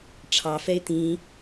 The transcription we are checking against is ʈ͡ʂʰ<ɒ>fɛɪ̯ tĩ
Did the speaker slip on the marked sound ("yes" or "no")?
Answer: yes